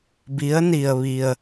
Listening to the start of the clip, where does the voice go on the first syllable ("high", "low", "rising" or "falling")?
rising